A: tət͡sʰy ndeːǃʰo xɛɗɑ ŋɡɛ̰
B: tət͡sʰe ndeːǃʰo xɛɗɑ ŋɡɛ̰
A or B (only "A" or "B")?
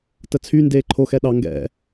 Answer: A